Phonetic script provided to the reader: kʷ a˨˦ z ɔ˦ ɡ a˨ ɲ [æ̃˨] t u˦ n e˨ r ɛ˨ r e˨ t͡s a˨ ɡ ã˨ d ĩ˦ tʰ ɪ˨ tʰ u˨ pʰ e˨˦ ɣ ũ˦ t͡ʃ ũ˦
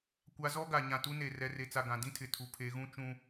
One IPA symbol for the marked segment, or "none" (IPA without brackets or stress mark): ã˨